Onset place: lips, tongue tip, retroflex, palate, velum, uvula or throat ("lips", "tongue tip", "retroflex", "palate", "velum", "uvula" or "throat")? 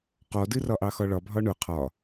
uvula